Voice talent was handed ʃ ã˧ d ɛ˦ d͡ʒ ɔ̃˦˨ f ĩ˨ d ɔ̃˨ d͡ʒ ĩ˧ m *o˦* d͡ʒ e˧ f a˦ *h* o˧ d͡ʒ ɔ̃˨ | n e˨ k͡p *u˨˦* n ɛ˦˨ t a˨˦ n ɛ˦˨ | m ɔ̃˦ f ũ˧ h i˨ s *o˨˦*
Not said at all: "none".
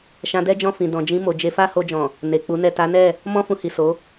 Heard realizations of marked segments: o˨, h, u˨˦, o˨˦

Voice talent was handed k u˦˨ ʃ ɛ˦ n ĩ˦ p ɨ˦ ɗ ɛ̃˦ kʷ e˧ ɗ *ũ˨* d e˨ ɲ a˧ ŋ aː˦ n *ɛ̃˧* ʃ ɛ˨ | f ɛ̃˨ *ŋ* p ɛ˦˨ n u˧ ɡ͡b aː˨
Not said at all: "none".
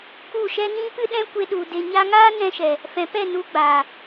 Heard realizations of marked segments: u˨, ɛ̃˧, none

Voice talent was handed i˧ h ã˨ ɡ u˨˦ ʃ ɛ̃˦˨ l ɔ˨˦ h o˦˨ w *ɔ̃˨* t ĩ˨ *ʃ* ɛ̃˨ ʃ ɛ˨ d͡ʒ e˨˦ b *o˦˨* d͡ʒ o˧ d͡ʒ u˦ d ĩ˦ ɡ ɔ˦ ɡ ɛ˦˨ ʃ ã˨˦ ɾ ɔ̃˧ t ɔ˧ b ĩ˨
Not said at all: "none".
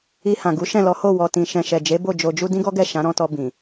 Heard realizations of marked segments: ɔ˨, ʃ, o˦˨

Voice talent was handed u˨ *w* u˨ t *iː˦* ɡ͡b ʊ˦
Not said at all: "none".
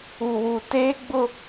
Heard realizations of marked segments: w, eː˦

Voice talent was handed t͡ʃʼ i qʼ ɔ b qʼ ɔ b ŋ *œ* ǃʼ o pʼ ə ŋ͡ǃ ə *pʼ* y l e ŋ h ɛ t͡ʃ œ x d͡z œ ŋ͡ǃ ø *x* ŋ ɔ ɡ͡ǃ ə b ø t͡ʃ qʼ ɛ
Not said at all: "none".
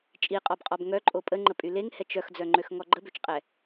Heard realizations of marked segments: œ, pʼ, x

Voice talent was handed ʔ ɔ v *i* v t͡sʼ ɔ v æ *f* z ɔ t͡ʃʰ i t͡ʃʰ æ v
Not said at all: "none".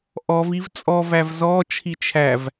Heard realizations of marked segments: i, v

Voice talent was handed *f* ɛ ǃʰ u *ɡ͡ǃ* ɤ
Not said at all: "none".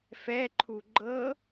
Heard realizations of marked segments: f, ɡ͡ǃ

